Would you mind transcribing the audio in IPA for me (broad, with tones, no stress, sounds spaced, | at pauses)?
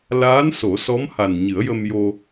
l aː˧˥ n s o˨˩˦ s ɔ˧˥ m h a˨˩ n ɲ ɨ˨˩˦ ə̯ j ə˧ m j o˧